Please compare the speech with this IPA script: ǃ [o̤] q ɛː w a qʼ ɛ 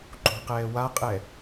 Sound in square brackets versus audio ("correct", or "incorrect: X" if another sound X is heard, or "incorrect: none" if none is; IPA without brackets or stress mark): correct